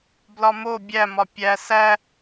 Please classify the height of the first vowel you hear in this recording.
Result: low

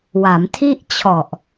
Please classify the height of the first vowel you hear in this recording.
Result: low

